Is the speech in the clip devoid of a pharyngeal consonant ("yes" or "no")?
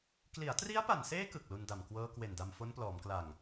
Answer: yes